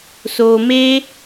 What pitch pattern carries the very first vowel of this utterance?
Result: low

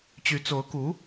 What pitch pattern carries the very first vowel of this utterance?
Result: rising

